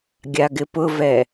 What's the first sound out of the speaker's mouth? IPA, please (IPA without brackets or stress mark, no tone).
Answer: ɡʲ